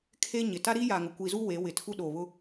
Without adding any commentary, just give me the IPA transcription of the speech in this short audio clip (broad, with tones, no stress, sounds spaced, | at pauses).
kʰ e˦ ɲ ɪ˨ t a˦ ɾ i˦ j aː˨ ŋ ʊ˨ kʷ i˨ z u˦ w e˨˦ w ɪ˨ tʰ u˦ ɗ o˨ β ʊ˦